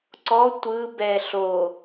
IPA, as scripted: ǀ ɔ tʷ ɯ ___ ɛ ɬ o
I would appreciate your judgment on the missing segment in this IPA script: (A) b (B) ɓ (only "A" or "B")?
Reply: A